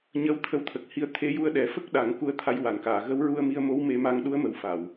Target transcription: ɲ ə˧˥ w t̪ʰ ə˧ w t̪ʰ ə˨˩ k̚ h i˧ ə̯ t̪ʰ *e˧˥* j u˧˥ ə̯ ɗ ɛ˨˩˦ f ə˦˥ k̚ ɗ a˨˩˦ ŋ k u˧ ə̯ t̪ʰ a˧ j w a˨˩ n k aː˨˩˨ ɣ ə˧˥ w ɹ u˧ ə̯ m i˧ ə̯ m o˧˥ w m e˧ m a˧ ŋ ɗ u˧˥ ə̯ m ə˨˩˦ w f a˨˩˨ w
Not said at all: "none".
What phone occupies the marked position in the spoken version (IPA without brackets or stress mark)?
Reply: e˧˥